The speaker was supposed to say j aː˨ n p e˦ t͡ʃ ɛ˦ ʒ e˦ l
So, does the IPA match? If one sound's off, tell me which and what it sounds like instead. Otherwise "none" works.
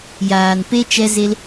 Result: ʒ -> z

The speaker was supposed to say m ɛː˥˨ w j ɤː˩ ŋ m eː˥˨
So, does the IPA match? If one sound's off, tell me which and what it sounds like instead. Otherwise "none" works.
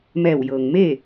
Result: ɛː˥˨ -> ɛː˧˩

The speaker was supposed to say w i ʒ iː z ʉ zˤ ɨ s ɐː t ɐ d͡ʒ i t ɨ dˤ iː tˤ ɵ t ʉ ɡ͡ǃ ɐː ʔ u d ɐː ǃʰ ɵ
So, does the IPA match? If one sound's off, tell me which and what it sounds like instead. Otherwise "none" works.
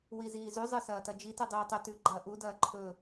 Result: ʒ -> z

